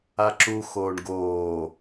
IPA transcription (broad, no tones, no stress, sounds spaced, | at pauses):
a ǁ u x oː ɳ ɡ oː